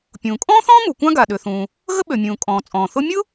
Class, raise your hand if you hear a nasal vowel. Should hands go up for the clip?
yes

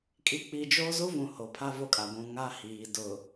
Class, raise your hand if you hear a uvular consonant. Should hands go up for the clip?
no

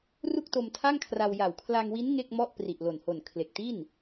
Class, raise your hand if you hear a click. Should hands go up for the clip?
no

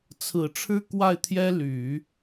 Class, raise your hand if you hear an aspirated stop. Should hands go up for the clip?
yes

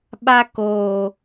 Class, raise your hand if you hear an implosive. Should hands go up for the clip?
yes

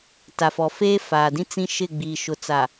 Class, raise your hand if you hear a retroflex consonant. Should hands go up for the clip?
no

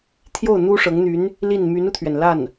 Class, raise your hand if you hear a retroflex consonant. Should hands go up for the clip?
yes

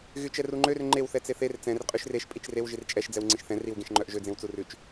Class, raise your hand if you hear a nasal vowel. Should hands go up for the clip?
yes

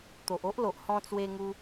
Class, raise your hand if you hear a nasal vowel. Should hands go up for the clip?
yes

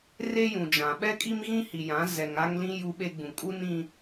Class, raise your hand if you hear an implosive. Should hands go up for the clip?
yes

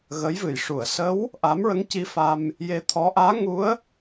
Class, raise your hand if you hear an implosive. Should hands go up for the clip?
no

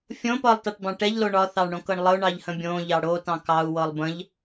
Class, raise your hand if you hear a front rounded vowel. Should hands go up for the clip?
no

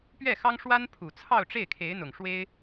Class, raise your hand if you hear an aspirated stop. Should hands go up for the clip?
yes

